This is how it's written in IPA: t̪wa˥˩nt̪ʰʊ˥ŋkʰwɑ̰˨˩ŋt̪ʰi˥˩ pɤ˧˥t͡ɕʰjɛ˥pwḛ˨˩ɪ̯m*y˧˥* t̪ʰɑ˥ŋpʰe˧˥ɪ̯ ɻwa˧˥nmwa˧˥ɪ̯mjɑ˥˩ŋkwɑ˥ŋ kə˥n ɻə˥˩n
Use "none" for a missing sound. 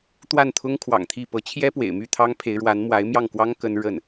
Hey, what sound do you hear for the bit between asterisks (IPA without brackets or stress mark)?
y˥˩